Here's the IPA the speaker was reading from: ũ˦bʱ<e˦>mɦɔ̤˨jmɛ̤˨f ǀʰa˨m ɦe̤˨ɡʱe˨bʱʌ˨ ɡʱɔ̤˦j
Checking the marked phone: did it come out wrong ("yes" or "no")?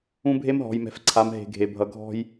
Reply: no